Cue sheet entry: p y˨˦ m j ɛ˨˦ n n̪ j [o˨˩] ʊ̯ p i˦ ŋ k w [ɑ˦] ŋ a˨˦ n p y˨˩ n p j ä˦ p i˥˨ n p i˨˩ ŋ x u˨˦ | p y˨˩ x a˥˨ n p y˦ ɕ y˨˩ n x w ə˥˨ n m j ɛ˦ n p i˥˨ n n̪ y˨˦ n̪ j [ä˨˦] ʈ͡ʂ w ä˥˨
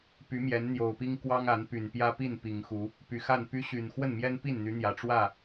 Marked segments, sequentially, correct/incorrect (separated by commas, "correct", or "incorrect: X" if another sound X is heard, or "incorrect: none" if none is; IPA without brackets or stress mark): correct, correct, incorrect: ä˨˩